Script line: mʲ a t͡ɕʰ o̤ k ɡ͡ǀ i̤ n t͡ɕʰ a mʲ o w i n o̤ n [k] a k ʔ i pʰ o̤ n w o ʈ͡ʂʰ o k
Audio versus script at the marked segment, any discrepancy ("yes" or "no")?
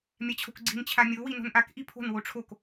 yes